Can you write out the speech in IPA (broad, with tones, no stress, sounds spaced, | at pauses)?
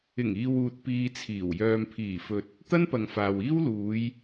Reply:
ɪ˨˩ ŋ iː˨ w uː˨ t̚ p iː˧ t͡sʰ iː˨˩ w j œː˨ m pʰ iː˨˩ f ɵ˨ t̚ | t̪ ɐ˥ n p ɐ˨ ŋ f aː˨ w iː˥ w l uː˨˧ j